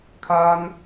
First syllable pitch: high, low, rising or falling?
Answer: high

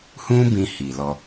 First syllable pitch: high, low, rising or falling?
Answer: high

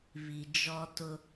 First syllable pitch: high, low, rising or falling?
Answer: low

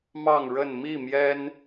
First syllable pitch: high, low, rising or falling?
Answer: falling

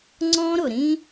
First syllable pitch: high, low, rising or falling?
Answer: high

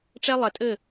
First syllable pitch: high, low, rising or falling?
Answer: high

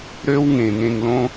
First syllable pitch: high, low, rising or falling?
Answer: high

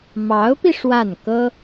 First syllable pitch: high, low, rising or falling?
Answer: rising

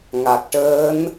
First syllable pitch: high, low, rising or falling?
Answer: low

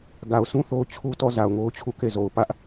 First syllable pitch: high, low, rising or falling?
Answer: low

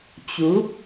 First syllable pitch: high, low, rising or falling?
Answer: rising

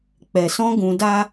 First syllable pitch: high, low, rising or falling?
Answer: low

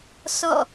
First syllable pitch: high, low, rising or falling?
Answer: falling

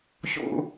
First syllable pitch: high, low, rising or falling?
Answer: low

